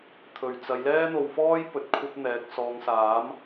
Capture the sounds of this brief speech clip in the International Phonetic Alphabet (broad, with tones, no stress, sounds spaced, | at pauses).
t̪ʰ ɵ˨˩ ɥ t͡s ɐ˨˧ j l ɛː˥ n̪ o˧ w f ɔː˥ j p ɵ˨˥ t̚ kʷʰ ɐ˥ p̚ n̪ ɛː˨˥ k̚ s ɔː˨ ŋ s aː˨˥ m